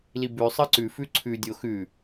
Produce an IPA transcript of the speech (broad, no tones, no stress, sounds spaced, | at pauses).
l i b ʉ sˤ ɨ ǀ ʉ f ʉ ǀʰ ʉ dʲ o x ʉ